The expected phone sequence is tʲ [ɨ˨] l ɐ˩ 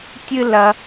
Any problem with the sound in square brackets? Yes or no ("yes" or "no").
no